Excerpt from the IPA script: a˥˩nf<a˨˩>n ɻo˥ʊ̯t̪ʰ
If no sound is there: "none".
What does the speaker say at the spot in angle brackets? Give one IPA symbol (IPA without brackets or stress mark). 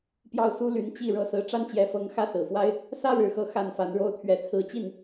a˧˥